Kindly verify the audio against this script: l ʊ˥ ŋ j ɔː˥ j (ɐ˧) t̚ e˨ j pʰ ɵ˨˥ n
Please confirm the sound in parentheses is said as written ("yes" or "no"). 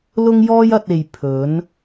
yes